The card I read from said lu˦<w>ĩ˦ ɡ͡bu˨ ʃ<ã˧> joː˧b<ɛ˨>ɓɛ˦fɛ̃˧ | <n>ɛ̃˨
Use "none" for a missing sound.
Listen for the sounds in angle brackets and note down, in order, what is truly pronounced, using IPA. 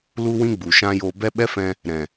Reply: w, ã˦, ɛ˦, ɾ

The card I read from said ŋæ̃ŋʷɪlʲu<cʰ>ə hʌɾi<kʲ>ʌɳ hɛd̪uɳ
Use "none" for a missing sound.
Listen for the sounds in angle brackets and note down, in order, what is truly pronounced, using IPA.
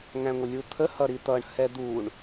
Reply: t̪ʰ, t̪

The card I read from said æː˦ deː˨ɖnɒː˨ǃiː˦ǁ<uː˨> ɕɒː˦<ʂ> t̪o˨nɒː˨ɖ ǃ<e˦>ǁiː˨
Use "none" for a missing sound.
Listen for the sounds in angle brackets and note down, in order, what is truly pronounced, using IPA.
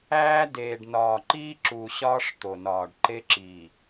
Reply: uː˨, ʂ, e˦

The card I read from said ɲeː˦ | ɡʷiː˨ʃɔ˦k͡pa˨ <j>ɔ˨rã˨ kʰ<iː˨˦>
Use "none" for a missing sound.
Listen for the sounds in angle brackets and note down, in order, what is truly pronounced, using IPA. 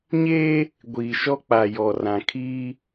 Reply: j, iː˦

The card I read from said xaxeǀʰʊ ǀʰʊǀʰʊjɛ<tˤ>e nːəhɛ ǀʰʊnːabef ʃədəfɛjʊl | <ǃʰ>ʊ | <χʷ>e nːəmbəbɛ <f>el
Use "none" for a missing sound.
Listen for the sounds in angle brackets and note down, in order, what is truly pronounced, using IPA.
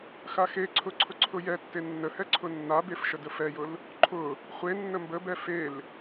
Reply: tː, ǃʰ, χʷ, f

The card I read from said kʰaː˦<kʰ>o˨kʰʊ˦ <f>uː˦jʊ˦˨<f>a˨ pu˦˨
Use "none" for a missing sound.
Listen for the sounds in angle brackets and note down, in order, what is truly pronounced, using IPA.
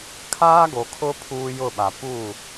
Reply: ɡ, pʰ, ɓ

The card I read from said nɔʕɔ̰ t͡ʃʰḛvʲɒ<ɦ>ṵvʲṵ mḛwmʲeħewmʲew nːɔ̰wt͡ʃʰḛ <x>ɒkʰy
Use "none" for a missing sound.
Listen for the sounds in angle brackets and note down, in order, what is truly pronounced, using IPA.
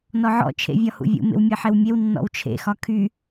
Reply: h, x

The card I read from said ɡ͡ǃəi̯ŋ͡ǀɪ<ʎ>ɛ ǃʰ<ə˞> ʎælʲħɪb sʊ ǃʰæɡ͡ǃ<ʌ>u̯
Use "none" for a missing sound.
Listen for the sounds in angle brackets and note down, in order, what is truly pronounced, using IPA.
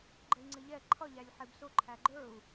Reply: ʎ, ʌ, ə˞

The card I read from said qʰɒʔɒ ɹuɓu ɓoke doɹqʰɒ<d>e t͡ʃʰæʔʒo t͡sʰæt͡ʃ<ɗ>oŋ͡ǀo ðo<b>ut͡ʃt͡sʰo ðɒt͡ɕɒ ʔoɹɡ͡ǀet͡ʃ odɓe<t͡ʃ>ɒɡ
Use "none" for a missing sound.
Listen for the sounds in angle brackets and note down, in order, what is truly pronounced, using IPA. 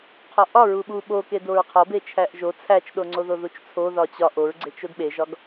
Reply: b, ɗ, ð, ʒ

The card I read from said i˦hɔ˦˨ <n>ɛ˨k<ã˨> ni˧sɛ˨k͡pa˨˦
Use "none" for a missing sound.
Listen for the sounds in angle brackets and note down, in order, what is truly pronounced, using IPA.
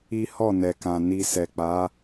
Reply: n, ã˨

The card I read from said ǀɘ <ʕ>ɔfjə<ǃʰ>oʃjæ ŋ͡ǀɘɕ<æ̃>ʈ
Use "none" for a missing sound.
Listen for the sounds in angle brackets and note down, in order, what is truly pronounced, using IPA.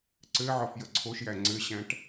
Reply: ʕ, ǀʰ, æ̃

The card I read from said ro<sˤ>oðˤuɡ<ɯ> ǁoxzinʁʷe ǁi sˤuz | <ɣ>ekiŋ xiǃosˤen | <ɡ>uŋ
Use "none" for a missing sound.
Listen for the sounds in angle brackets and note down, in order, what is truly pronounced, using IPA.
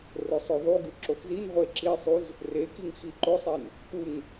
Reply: sˤ, ɯ, r, k

